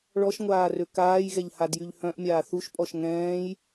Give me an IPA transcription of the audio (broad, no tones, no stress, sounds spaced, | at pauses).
ɭ ɔ ʃ ŋʷ aː r ø k aː j ɣ ɛ ʎ h a d j y ʎ h œ̃ ʔ mʲ aː θ u ʃ pʼ ɔ ʃ ŋ ɛ̃ː j